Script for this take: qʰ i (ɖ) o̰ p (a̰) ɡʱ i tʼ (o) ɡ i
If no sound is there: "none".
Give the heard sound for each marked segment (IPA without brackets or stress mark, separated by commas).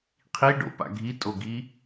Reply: ɖ, a̰, o